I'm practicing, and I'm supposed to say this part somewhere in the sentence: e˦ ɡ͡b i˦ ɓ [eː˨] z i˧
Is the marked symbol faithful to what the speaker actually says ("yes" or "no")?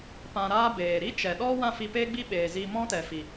yes